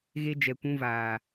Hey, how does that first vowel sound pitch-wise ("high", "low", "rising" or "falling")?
high